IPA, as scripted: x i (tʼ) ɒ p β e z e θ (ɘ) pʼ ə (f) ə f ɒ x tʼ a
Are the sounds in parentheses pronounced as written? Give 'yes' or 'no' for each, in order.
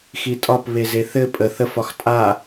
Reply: yes, yes, no

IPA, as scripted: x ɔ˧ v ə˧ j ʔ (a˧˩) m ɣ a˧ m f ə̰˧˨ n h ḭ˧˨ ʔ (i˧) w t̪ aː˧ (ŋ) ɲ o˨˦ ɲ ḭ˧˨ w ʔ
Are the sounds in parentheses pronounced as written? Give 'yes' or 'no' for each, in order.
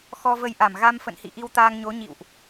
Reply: yes, yes, yes

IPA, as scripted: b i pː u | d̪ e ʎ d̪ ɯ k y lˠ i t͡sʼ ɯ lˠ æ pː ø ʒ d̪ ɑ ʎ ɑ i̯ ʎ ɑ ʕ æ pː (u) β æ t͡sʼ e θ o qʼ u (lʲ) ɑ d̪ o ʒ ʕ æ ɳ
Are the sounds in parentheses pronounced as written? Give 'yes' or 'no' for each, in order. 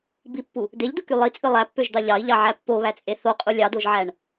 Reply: no, yes

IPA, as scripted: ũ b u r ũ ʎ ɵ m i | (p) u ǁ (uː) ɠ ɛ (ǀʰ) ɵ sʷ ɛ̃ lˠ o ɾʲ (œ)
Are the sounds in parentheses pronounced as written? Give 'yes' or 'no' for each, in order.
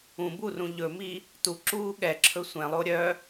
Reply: no, yes, no, yes

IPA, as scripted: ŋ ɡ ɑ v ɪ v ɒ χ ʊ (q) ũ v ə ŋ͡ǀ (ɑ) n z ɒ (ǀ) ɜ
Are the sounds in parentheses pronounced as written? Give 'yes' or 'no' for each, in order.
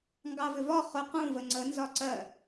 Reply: yes, no, yes

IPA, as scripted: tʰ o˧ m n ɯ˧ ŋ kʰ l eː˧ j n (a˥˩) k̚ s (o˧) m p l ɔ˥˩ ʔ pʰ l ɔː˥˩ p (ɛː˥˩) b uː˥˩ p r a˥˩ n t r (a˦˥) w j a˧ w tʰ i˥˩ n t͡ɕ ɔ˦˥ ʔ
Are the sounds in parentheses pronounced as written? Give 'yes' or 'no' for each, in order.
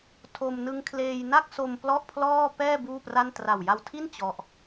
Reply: yes, yes, yes, no

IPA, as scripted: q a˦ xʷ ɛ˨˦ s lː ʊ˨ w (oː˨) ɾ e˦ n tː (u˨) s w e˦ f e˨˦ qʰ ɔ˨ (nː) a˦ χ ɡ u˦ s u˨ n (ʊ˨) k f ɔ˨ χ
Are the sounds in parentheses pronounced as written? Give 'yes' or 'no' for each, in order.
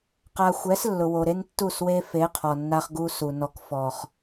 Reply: no, no, yes, no

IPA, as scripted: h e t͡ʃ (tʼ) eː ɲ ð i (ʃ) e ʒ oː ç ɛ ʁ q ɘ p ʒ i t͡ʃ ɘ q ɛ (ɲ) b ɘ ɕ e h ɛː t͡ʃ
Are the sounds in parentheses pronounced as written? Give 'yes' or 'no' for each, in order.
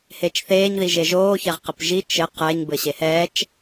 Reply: no, no, yes

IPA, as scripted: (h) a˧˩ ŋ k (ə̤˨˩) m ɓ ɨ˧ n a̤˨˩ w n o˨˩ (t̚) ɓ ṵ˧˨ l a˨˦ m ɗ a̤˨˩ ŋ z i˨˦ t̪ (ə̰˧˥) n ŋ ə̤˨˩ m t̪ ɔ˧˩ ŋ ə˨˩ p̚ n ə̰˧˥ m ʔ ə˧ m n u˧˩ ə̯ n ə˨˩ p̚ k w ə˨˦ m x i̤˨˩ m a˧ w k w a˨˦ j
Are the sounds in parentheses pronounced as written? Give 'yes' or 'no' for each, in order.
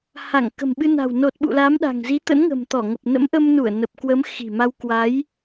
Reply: yes, yes, yes, yes

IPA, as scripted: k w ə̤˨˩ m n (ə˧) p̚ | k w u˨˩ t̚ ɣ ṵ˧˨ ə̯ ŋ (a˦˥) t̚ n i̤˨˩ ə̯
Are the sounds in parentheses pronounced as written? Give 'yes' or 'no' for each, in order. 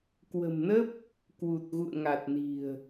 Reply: no, no

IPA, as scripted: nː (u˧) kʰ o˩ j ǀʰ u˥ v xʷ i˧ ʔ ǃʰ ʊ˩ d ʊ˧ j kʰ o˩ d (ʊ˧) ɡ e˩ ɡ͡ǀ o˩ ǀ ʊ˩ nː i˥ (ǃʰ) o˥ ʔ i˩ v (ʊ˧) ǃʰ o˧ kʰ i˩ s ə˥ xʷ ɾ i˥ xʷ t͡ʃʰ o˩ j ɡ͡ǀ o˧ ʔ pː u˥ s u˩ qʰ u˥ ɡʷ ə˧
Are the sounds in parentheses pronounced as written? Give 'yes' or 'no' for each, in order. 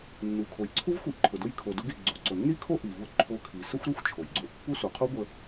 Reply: no, yes, no, yes

